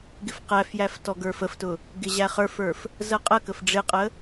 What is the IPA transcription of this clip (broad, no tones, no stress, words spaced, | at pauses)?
ɡɪfqæfjæf tɔɡə˞fəftʊ | ɡɪʑæχə˞fə˞f | zəqʼəkəf ɖ͡ʐɪqʼə